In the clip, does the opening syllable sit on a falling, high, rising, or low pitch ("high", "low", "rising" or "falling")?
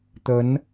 rising